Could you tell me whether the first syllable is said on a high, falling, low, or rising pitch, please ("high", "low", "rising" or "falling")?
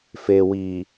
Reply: low